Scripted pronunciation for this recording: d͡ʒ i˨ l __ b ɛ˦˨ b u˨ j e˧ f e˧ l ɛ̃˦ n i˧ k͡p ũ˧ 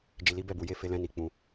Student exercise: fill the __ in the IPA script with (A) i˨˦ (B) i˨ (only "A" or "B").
A